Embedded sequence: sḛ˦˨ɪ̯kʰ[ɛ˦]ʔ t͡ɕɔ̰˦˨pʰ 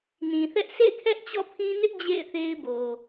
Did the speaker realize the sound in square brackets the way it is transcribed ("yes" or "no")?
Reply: yes